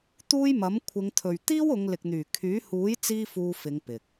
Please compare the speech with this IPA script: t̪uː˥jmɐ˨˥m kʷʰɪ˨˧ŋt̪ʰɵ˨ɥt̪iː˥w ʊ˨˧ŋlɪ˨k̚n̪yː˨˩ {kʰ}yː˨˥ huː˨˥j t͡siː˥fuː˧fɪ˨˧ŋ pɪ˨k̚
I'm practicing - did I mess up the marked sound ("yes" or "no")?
no